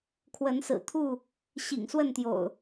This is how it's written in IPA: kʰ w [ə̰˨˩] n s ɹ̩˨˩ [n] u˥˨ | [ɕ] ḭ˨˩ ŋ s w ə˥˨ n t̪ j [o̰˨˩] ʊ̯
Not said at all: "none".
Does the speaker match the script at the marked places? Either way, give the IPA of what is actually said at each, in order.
ə˨˦, t̪ʰ, ɕ, o̰˨˩

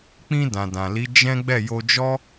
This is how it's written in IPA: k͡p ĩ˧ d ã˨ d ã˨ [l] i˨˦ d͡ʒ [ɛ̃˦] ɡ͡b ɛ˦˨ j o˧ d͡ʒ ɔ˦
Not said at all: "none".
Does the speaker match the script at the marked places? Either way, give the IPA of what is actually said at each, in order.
l, ɛ̃˦

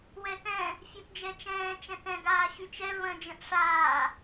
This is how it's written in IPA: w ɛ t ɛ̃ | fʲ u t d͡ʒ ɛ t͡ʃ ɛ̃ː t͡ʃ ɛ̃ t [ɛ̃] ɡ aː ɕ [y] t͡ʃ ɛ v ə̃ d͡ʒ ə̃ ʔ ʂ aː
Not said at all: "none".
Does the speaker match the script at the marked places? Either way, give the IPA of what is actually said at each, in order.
ɛ̃, y

